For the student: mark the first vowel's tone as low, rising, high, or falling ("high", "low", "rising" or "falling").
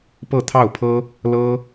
falling